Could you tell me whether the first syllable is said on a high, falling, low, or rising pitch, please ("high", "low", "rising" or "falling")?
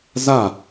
falling